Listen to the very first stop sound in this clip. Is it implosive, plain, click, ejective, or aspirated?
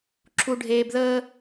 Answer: click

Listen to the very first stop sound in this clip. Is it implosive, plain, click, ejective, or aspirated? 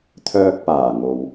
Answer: aspirated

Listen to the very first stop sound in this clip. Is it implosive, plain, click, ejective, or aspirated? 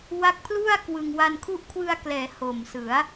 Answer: plain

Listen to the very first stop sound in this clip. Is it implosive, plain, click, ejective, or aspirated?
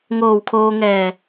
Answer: aspirated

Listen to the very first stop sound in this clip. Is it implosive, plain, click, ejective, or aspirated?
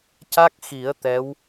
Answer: plain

